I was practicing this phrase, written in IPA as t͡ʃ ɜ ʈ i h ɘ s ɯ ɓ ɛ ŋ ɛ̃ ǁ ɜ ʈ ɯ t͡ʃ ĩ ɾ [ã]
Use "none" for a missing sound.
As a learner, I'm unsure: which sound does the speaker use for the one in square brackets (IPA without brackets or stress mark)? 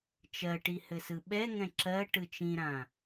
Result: ã